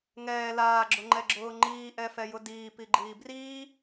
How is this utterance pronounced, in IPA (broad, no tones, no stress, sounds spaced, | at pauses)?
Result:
ŋ ɛː l aː ɡ͡ǁ ʊ ŋ͡ǃ ɛ ɡ͡ǁ ʊː ŋ͡ǃ iː ʔ ɛ f ɛ j ʊ d iː p i ɡ͡ǃ iː b r iː